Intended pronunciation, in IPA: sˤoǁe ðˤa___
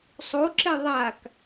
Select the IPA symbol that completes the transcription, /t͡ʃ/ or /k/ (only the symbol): k